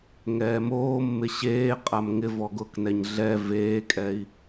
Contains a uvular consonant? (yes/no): yes